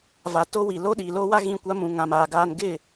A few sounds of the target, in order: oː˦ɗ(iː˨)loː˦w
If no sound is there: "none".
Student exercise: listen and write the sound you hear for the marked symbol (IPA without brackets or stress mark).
iː˨